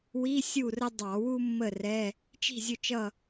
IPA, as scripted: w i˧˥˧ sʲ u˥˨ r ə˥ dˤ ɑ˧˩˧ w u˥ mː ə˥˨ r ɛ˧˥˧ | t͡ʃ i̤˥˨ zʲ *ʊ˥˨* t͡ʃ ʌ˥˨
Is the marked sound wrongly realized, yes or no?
no